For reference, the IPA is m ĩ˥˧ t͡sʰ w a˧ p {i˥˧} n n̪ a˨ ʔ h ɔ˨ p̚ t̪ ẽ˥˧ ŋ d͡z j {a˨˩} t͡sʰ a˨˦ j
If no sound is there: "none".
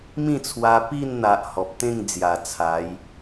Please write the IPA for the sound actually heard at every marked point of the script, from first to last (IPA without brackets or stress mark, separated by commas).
i˥˧, a˨˩